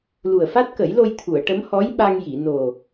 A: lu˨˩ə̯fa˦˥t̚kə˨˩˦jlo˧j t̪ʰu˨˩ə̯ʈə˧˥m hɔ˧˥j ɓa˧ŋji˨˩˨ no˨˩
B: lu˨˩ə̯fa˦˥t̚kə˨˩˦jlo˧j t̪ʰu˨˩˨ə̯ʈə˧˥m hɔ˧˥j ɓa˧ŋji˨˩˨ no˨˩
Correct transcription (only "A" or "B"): B